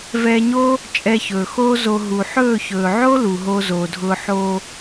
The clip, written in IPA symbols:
v ɛː˧ ɲ oː˦ | t͡ʃʼ ɛ˧ ç ɵː˨ x oː˦ z o˧ ɦ u˨ ħ ɵː˦˨ ç ɵː˨ ʕ o˦ l u˨ ɦ oː˦ z oː˨ dʱ ʊː˦ ħ oː˧

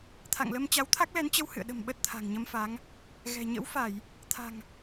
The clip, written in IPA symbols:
t̪ʰ a̰˧˨ ŋ l ə˧ m t͡ɕ a˨˦ w t̪ʰ a˦˥ k̚ l ɛ˨˦ n t͡ɕ ə˧ w h ɨ̰˧˨ ə̯ ɗ ə̤˨˩ m ɓ ə˦˥ t̚ t̪ʰ a̤˨˩ ŋ ɲ ə˧ m f a˨˦ ŋ | ɣ ɛ̤˨˩ ɲ ə̰˧˥ w f a˧˩˨ j | t̪ʰ a̤˨˩ ŋ

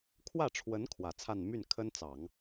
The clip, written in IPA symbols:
kʰ w ä˥˩ ʈ͡ʂʰ w ə˧˥ n kʰ w ä˨˩ t͡sʰ a˥˧ n m y˥˩ n kʰ ə˥ n t͡s ɑ˨˩˦ ŋ

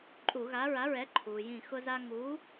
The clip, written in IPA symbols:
ǃʼ u˧˩˧ ɣ a˨˥ ɹ a˨˥ ɹ ɛ˨˥ ǃʰ uː˩ j ĩ˧˩ x ʊ˦ z a˦ ŋ uː˨˥

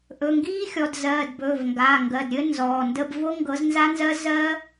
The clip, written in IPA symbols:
ʔ ɵ˩˧˩ ŋ ɡ iː˦˥ xʲ ɔ˩˧˩ d z ɜː˩˧˩ d b ɵː˩˧˩ v ŋ ɡ aː˩˧˩ ŋ ɡ ɜ˩˧˩ d ɾʲ ɘ˦˥ n z ɔː˩˧˩ n d ə˦˥ b v o˦˥ ŋ ɡ ɤ˨˥ z n z a˦˥ n z ɜ˦˥ z ɜ˦˥

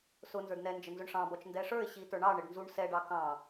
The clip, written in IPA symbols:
s ʊ n z ə˞ d n ɛ n d͡ʒ ə n z ʊ ɳ ʂ ɑ̃ b ɔ t͡ʃ n d ɛ ʂ ə˞ ɪ̯ ɕ i t ə˞ ɳ ɑ ɳ ɪ ɖ n z u ɳ s ɛ ɖ ɑ k ɑ̃

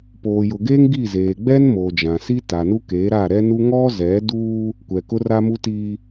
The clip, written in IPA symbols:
p oː˨ j ʊ˨ ɡ eː˦ ŋ ɡ i˦˨ z eː˨ ɡ͡b ɛ˦ n m oː˨ d͡ʒ ã˨ s i˦ t a˨ n u˦ k eː˨˦ ɾ a˦˨ ɾ ɛ˦ n u˦ ŋ ɔ˦ z ɛ˨˦ d u˦ | kʷ ɛ˨ k ʊ˦ r a˦ m u˦ t i˦

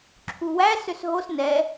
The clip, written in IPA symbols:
ǁʰ u w æ s ø s ɦ o s n ɛ

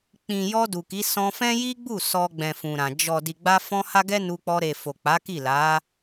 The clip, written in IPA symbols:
k͡p ĩ˨ j ɔ˧ d u˨ k i˨˦ s ɔ̃˧ f ɛ̃˦ j i˦ ɡ͡b u˦˨ s ɔ˧ ɡ͡b ɛ̃˨ f ũ˨ ɾ ã˨ d͡ʒ ɔ˨ d i˨ ɡ͡b a˧ f ɔ̃˧ h a˦ ɡ ɛ˦ n u˧ k͡p ɔ˧ ɾ e˨ f o˨ k͡p a˨˦ k i˦˨ l a˨˦

